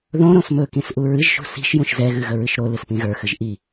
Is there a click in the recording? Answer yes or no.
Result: no